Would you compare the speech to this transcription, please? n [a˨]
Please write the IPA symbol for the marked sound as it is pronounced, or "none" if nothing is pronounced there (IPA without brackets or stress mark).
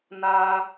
a˦